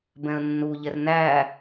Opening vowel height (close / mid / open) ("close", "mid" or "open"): mid